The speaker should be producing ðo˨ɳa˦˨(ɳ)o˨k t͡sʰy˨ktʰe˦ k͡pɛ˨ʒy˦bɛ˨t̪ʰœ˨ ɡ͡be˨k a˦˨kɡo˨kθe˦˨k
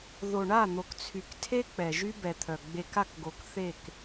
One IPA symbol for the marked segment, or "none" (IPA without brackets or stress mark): n̪